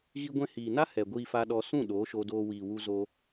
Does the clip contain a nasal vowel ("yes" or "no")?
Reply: yes